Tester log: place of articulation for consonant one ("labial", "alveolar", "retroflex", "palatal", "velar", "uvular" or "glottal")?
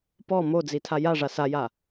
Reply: labial